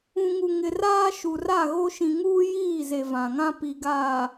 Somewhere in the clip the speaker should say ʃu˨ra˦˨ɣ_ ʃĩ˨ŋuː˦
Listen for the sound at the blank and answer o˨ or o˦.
o˦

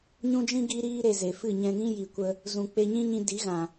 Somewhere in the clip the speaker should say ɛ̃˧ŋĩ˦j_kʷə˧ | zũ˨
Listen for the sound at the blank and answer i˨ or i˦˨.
i˨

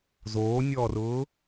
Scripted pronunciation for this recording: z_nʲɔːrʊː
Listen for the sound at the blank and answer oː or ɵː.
oː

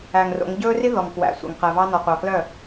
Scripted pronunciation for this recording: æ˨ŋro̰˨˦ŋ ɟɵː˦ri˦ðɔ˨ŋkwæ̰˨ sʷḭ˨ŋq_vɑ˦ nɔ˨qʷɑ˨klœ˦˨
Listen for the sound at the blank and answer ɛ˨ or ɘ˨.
ɛ˨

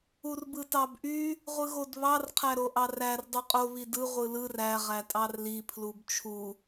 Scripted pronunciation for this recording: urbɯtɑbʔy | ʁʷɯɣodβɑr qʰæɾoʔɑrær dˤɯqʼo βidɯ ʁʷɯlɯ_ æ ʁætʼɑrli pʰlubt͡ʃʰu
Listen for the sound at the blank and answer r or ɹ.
r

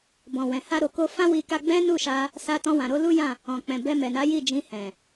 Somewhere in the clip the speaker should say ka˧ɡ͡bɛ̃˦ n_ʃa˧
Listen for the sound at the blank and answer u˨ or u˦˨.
u˦˨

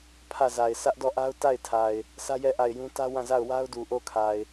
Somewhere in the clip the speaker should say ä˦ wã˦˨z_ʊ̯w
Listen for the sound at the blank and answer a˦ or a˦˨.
a˦˨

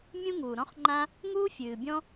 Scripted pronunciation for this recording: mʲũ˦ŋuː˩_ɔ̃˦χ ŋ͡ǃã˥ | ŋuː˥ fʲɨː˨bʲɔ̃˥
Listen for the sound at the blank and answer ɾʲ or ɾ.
ɾ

